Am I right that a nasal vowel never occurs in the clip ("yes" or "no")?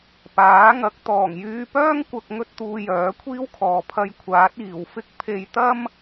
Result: yes